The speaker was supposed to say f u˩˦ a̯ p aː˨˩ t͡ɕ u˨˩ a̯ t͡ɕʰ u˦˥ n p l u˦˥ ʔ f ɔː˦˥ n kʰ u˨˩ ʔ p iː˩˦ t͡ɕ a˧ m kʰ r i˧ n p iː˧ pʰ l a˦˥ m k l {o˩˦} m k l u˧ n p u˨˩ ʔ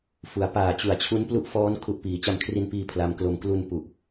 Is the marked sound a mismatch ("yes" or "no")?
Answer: yes